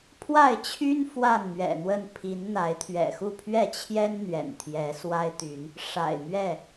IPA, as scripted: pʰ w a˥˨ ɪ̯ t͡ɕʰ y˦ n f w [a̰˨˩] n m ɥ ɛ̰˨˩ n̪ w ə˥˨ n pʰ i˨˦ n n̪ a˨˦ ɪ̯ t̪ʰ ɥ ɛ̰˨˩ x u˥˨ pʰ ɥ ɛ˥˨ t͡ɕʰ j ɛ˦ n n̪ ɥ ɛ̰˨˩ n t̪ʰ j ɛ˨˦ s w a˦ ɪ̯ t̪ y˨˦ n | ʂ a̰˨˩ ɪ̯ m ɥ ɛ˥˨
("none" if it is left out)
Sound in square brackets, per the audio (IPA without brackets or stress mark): a˥˨